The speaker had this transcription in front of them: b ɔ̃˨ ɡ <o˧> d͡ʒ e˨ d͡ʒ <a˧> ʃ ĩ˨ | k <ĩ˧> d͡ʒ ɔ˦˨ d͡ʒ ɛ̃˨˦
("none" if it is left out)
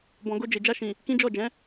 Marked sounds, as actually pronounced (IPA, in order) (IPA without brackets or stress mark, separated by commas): o˧, a˧, ĩ˦